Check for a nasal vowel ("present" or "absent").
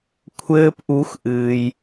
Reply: absent